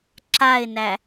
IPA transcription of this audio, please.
ǁ a ɪ̯ n æ

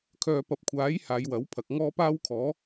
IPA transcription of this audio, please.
kʰ œː˨ p ɐ˨ p̚ kʷʰ aː˨˥ j h aː˨˧ j w ɐ˨˥ w pʰ ɐ˨ k̚ ŋ ɔː˥ p aː˥ w kʰ ɔː˨˥

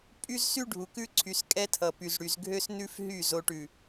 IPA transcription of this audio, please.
pʼ y˦ z s y˦ ɖʱ u˨ k ʉ˦ ǀʰ y˨ s kʼ ɛ˦ tʰ ʌ˨ p y˨ z ɽ y˨ z ɡʱ ø˦ s n ʉ˦ f ɦ y˦˨ z o˨ ʈ ʉ˨

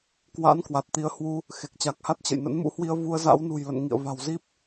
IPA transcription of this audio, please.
k w a̰˧˥ n k w a˨˩ t̚ t̪ i˨˦ ə̯ h w u˧ | x e˨˩ k̚ t͡ɕ a˨˩ k̚ h a˦˥ t̚ t͡ɕ ə̰˧˨ j n ə̰˧˥ n m ṵ˧˥ h w i˧ ə̯ v u˧ ə̯ z a̰˧˥ w n ṳ˨˩ j l ə̰˧˨ n ŋ ḭ˧˨ ə̯ v a̤˨˩ w z i˦˥ p̚

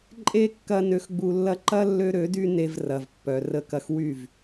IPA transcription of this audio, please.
ǃʼ e˦ kː ɐ˧ n ø˨ x ɡ͡b u˨ lː ɐ˧ ǃ ɐ˦ lː ø˦ ɾ ø˨˦ d y˦ n e˧ v r ɐ˨ v pː œ˨ r ə˧ k ɐ˧ x w y˦˨ v

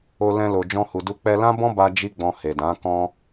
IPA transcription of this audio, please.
o˧ l ɛ̃˧ l o˨ d͡ʒ ɔ̃˧ h u˨ d u˧ k͡p ɛ˧ l ã˦ b ɔ̃˦ b a˧ d͡ʒ i˦ ɡ͡b ɔ̃˧ h e˨ d ã˨˦ k ɔ̃˦

